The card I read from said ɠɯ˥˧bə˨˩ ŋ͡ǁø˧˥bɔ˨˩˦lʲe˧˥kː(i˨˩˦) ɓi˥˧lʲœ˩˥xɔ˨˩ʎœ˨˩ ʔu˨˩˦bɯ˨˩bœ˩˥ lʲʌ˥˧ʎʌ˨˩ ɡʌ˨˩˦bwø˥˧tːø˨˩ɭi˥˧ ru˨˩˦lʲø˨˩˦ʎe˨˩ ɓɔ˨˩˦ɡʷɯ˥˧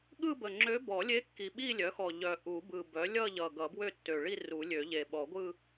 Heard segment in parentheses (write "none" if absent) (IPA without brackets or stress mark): i˨˩